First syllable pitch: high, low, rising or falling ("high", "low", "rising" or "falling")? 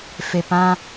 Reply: low